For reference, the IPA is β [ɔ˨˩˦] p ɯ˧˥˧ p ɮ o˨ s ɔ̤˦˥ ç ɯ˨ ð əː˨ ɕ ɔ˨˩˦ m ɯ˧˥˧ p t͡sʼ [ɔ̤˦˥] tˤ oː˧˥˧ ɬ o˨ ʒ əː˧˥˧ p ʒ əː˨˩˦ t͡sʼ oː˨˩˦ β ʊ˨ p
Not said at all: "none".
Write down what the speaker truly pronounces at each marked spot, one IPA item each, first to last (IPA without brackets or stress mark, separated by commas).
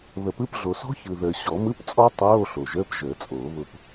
ə˨˩˦, ɔ˦˥